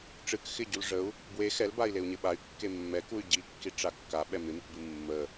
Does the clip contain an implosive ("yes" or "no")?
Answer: yes